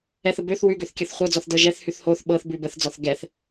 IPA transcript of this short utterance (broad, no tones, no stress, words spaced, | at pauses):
ɛθə bøθ wʉɡøθ kʲɤθχʷɤd͡zɔθ dɤʒɛθhʉθ hoθ ɓɤθbʉ bəθd͡zɔθ ɡɛθ